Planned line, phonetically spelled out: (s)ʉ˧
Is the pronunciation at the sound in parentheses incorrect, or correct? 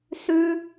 correct